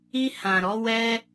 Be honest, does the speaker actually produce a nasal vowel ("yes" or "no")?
yes